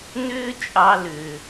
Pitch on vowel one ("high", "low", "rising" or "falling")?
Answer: high